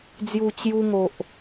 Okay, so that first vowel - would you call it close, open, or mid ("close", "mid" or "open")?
close